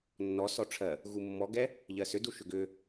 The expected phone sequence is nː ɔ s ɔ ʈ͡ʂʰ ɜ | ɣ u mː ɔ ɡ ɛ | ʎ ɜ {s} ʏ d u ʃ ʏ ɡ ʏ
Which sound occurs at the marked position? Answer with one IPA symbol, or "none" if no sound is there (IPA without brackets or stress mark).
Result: s